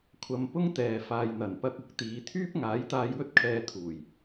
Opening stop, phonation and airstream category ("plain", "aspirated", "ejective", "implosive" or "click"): aspirated